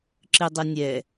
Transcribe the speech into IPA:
ǁ ɨ dˤ ɨ nʲ ɛ

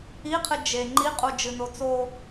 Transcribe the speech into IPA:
i qʰ ɨ d͡ʒ e ŋ͡ǃ i qʼ u d͡ʒ ɨ n o t͡s o

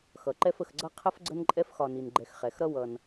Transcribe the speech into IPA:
x ʌ˩ ǃ ɛ˦ f ə˨ x ɡ͡ǀ ʌ˥ qʰ ə˦ f ɡ͡ǀ ə˦ n ǃʼ ɛ˦ f x ɒ˨ n i˩ n ɡ͡ǃ ɛ˨ x χ ɛ˩ x ɾ ʌ˦ w ʌ˨ n

